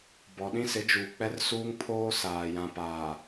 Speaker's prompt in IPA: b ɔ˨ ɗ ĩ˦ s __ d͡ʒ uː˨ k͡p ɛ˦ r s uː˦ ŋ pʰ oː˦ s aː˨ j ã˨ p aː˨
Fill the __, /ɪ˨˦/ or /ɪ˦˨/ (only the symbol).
ɪ˨˦